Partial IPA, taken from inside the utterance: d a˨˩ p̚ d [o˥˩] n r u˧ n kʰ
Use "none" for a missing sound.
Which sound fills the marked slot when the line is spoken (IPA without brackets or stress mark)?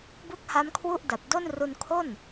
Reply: o˥˩